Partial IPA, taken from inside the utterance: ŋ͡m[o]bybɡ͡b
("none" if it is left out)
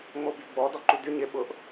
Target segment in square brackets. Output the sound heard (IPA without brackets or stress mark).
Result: o